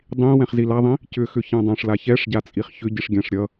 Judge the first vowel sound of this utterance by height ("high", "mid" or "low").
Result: high